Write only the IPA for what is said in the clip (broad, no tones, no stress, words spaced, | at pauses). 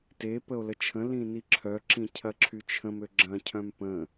te pəo̯lət͡ʃʰə̃ lĩniǁʰœ ǁĩcʰɐǁʰyt͡ʃʰə̃m øɡ͡ǁɐ̃ cʰœ̃mpə̃